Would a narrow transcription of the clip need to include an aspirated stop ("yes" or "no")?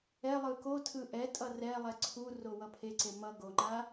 yes